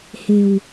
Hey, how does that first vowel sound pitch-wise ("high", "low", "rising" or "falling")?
low